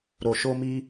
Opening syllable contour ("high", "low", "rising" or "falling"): low